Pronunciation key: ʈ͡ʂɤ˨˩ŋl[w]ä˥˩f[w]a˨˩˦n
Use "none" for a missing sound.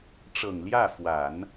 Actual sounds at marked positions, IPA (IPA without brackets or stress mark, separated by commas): j, w